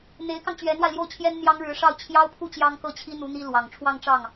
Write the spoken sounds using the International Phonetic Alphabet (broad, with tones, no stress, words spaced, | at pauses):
n̪e˧˥ɪ̯kɑ˧ŋ t͡ɕɥɛ˧˥nwa˧ɪ̯ljo˥˩ʊ̯t͡ɕʰjɛ˥n n̪jɑ˥ŋɻɻ̩˧˥ʂɑ˥˩ʊ̯ t͡ɕʰjɑ˥ʊ̯pʰu˥˩ t͡ɕjɑ˥ŋkɤ˥˩t͡ɕʰi˥n̪u˧˥ n̪i˥lwɑ˨˩ŋ ʈ͡ʂʰwɑ˥˧ŋʈ͡ʂɑ˥˩ŋ